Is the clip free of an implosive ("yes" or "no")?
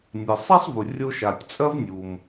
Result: yes